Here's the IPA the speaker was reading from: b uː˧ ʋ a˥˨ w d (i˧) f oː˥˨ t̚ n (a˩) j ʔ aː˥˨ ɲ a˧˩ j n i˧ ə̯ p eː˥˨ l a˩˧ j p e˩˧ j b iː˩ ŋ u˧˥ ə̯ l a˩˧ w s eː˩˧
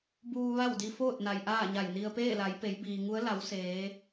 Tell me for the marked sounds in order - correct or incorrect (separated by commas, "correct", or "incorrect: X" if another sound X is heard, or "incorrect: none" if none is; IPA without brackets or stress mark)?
correct, correct